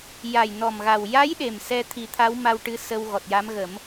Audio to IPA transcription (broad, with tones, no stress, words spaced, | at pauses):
ja˨˩jnɔ˨˩mɣa˨˩w ja˧˥j ɗe˨˩msɛ˧ t̪ʰi˨˩˦t̪ʰa˧˥w ma˧w ʈɨ˧˥ sə˧wɣɔ˨˩t̚ja˧˥m ɣə˨˩˦m